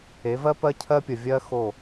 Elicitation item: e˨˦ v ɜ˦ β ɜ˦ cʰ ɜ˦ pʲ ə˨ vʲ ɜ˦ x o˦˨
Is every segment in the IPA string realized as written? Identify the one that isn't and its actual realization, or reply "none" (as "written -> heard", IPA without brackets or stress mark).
β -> p